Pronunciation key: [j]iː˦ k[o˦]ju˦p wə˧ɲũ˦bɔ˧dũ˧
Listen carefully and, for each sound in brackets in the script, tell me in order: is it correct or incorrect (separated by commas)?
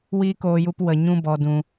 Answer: incorrect, incorrect